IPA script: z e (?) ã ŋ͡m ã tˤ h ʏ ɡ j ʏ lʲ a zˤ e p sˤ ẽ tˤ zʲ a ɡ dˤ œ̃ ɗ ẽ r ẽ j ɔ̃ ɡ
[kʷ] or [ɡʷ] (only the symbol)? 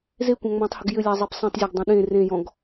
kʷ